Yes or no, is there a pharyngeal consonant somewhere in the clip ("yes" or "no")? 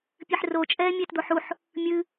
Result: yes